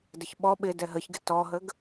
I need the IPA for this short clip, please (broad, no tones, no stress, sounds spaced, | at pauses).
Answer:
d ə ç ɓ ɔ ɓ ɪ d ɛ ɦ ə ç ɡ ɪ t ɔ ɦ ə ɡ